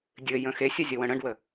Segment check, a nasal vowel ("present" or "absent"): present